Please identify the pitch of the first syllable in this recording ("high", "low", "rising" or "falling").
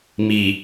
low